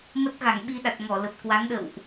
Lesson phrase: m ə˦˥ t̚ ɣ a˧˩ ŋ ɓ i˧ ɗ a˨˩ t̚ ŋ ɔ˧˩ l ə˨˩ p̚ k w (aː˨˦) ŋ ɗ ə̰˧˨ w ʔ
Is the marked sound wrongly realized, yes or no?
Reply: yes